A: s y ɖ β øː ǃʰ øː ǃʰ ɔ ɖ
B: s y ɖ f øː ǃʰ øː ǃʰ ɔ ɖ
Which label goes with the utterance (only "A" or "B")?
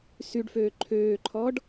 B